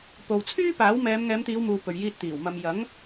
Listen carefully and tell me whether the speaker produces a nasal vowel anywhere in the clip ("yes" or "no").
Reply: no